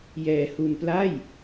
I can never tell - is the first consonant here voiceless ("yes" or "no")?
no